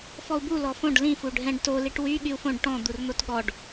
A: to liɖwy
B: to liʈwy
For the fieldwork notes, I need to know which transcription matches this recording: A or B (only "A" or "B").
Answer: B